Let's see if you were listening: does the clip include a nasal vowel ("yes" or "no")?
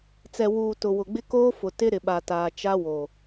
no